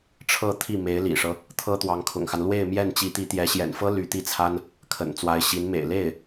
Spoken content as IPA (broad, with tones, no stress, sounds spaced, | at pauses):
ʈ͡ʂʰ ɤ˥˧ t̪ʰ i˥˩ m e˧˥ ɪ̯ l ḭ˨˩ ʂ ɤ˦ | t̪ʰ ɤ˥ t̪ w ɑ˧˥ ŋ kʰ ʊ̰˨˩ ŋ x a˦ n l w e˥˧ ɪ̯ m j ɛ˥˩ n t͡ɕ i˧˥ t̪ i˧˥ t̪ j ɛ˧˥ ɕ j ɛ̰˨˩ n f ɤ˥ l y˧˥ t̪ i˥˩ t͡sʰ a˥ n | kʰ ə̰˨˩ n t͡s w a˧˥ ɪ̯ ɕ i˧˥ n m ḛ˨˩ ɪ̯ l e˥˩ ɪ̯